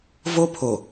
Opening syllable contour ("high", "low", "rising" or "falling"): high